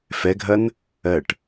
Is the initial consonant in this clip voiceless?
yes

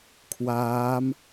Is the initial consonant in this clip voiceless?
yes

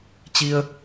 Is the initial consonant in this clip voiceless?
yes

